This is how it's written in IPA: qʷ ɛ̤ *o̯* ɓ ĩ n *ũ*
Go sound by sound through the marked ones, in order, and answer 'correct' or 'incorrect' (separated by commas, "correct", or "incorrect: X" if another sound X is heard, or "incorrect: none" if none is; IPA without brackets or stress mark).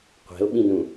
correct, correct